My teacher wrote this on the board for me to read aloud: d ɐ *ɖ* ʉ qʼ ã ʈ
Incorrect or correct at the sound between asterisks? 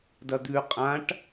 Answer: incorrect: d̪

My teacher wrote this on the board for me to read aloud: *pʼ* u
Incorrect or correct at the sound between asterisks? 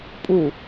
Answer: correct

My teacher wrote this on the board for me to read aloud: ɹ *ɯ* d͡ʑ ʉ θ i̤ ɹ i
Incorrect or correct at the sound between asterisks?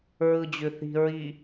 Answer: correct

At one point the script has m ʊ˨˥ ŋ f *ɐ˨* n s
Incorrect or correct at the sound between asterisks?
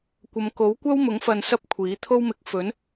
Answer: incorrect: ɐ˧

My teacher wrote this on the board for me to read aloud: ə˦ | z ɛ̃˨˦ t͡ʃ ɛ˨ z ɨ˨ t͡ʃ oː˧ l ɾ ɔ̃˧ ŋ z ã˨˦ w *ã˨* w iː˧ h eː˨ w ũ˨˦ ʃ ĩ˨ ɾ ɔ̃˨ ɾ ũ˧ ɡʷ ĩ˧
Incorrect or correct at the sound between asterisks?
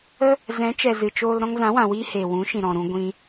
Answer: correct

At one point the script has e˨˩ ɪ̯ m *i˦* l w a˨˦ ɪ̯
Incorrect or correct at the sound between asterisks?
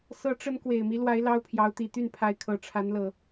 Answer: correct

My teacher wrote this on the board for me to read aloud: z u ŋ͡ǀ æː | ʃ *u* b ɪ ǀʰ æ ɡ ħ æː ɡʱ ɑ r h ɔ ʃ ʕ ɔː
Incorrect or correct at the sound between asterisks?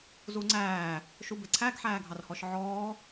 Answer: correct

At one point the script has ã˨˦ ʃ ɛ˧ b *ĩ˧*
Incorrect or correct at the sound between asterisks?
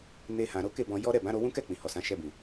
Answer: incorrect: ĩ˨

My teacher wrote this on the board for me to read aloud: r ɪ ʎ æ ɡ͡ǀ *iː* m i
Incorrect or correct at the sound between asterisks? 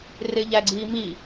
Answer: correct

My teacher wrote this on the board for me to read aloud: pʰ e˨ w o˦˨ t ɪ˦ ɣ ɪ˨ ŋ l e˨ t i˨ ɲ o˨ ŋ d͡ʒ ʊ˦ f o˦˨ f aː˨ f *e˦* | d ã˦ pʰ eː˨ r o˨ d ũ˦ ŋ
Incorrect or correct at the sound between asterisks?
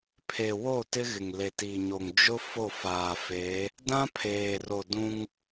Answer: incorrect: e˨˦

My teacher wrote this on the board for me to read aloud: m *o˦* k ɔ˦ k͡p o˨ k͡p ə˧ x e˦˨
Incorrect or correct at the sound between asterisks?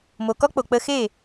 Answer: incorrect: o˨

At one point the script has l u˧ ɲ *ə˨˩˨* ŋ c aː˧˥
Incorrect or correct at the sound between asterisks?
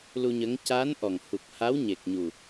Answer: incorrect: ə˧˥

